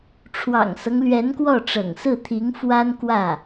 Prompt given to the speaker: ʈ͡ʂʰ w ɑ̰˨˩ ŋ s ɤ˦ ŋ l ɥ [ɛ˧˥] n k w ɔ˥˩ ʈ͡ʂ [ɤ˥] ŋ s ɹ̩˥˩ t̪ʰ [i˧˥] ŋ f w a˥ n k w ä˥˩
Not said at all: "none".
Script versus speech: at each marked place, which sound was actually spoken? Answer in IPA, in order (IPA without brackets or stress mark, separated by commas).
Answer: ɛ˧˥, ɤ̰˨˩, i˧˥